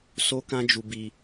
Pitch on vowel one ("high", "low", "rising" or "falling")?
high